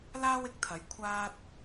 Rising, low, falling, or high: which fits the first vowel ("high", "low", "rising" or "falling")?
high